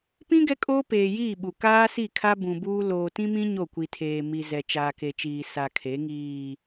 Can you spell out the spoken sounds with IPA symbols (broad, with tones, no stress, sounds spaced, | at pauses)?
p ĩ˦ ɡ ɛ˦ kʼ oː˦ p eː˨ j iː˦˨ ɓ u˨ k aː˦ s i˦˨ kʰ a˦ b ũ˨ b uː˦ l oː˨ t ĩ˦ m ĩ˦ ɲ o˦˨ kʷ i˨ tʰ eː˨ m i˨ z ɛ˨ t͡ʃ aː˨ k e˨ t͡ʃ iː˨ s a˨ kʰ e˨˦ ŋ iː˨